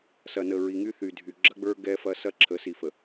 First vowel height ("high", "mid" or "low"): low